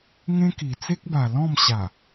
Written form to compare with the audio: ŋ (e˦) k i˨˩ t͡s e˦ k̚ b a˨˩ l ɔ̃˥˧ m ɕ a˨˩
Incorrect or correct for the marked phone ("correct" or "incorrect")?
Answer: incorrect